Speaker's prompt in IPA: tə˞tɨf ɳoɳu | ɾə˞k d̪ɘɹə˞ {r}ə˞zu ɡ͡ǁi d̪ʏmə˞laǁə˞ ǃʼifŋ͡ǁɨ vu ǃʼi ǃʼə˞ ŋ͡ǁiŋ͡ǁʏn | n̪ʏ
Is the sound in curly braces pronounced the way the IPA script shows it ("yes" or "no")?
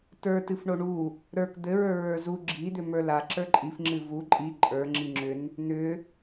no